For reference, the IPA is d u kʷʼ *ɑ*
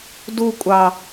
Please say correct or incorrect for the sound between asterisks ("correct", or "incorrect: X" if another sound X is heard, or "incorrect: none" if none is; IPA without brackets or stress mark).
correct